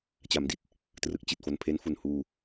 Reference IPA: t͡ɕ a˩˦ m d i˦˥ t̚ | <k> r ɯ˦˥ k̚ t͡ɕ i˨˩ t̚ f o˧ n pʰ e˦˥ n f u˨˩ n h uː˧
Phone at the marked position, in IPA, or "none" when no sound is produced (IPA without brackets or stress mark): t